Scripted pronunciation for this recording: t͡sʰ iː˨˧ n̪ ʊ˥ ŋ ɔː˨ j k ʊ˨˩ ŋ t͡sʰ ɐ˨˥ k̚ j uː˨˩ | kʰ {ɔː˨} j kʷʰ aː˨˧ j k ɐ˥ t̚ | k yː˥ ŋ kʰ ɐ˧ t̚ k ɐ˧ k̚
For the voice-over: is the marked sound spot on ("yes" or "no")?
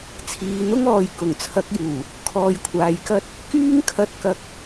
yes